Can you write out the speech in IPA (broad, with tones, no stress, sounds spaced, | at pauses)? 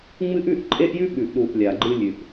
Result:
ŋ͡m ɨ˦ ʔ ʉ˦ ʔ ǃʼ e˦ ʔ j ʉ˦ ɓ ʉ˨ ʔ ɗ u˨ ʔ lʲ a˨ ɡ͡ǃ ɨ˧ lʲ ʉ˨ ʔ